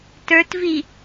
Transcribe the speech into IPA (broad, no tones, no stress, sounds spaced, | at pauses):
t ə˞ t v i